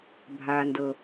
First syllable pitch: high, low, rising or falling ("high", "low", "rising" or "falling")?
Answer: low